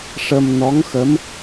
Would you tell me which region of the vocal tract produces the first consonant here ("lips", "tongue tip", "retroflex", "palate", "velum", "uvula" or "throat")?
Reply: retroflex